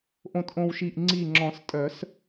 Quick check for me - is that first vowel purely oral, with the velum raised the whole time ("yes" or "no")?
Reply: no